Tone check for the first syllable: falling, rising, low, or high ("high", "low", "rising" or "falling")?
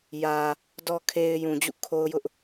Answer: low